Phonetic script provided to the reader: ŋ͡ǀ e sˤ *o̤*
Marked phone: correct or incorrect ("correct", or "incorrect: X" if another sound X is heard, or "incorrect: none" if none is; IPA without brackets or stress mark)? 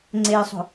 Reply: correct